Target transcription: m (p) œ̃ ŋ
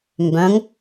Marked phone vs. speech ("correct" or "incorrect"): incorrect